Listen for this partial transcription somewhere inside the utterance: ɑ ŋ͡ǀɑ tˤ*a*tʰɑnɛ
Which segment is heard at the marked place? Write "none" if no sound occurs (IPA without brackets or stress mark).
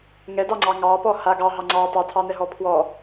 ɑ